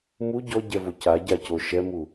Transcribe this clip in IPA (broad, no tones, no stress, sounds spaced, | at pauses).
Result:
m u ɟ ɔ ɟ ɛ v o c a ɟ a c o ʃ ɛ m u